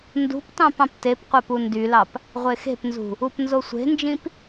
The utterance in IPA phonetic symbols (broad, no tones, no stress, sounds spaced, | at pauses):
n d ṳ p t ɑ̃ p ɑ̃ p t e p qʷ æ p u n d y l ɑ p | ʁʷ e x e̤ p n z ṳ | u p n z o sʷ e̤ n d͡ʒ ĩ p